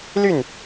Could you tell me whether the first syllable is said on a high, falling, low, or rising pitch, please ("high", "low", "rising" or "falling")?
falling